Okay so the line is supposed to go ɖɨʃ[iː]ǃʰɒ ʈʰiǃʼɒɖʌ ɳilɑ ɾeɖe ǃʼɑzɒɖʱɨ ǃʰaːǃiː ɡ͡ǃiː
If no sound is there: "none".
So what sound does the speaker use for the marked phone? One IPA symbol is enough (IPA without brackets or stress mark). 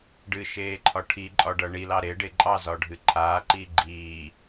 eː